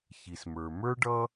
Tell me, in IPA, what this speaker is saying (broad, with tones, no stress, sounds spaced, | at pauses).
ç i˩ s m ə˞˩ m ə˞˥ ɖ ʌ˥